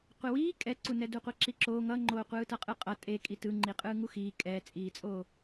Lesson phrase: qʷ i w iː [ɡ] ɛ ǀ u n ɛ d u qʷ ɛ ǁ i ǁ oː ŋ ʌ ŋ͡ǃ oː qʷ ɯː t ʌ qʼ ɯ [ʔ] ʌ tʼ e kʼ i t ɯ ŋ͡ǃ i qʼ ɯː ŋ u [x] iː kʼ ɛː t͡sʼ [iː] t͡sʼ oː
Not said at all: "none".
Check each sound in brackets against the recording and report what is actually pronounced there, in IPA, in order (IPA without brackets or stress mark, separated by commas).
kʼ, qʼ, x, iː